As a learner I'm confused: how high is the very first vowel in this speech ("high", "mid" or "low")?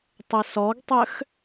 high